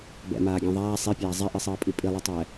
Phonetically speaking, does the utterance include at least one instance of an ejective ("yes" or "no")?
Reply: yes